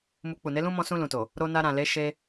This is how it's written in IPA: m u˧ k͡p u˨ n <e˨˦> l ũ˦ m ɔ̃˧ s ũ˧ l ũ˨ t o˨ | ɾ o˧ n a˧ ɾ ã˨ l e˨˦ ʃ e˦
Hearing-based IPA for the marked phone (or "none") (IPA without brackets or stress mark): e˨˦